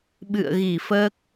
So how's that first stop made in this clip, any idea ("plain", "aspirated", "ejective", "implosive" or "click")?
implosive